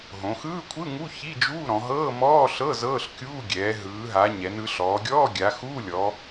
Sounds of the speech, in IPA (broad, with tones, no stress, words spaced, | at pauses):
ɦõ˩˧xɯː˧˥˧kʷʰɯ˧˥˧ŋu˧˥˧ çi˧˥˧d͡ʒuː˧˥˧ɾɔ̃˩˧ ɦɤː˧˥˧mɔː˧˥˧ɬɤ˧˥˧ zɤː˧˥˧ɬkʲuː˧˥˧ ɡʲɛː˩˧ ɦɯː˩˧ɦa˩˧ ɲɛ˩˧nɯ˩˧ɬɔː˩˧ɡʲɔː˧˥˧ ɡʲa˩˧ xuː˧˥˧lʲɔ˩˧